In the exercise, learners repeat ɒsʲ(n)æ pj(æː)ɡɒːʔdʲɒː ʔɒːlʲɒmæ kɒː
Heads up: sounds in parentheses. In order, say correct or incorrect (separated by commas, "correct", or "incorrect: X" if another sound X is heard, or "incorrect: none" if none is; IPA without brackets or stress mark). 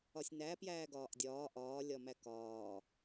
correct, correct